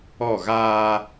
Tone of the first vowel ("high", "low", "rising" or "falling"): falling